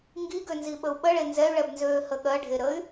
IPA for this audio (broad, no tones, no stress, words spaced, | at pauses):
ŋɡiɡø nziɓəu̯ɓəɭe nzɛy̯ɭɛbnzøː həɠɜɖʱe ɾəy̯